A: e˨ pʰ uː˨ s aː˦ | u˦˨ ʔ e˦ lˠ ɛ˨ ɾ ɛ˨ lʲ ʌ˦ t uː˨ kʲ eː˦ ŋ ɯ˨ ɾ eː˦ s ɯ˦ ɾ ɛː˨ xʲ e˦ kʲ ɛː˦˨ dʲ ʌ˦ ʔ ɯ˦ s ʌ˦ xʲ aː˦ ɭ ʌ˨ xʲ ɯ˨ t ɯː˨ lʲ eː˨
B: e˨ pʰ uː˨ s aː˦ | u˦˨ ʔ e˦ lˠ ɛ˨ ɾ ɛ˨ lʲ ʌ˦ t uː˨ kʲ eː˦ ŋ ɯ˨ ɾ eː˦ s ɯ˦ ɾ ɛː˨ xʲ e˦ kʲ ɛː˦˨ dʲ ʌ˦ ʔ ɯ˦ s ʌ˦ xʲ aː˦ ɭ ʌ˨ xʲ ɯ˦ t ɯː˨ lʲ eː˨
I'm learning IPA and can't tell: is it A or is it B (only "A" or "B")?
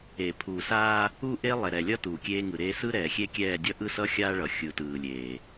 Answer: A